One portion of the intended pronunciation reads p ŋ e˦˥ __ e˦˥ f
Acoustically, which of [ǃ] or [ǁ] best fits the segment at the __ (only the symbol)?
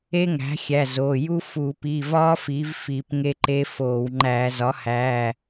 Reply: ǃ